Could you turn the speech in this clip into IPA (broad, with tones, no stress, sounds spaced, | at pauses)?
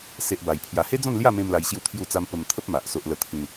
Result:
s e˦ ʔ b a˧ j pʰ j a˧ h e˦ d͡z ɔ̃˥˧ n l j a˥˧ m ẽ˧ m l a˧ j ɕ j u˥˧ t̪ʰ j u˥˧ t͡s a˦ m p ə˧ m t̪ʰ ə˦ p̚ m a˨ ʔ s o˦ ʔ l ə˥˧ t̪ʰ ĩ˧